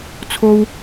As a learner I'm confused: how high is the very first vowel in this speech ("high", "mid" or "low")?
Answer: mid